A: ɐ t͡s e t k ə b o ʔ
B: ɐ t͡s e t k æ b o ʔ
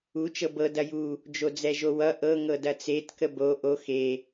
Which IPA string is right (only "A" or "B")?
A